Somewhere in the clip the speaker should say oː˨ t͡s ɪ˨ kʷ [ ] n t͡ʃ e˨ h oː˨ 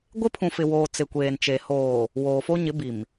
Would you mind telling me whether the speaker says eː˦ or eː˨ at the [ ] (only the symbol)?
eː˨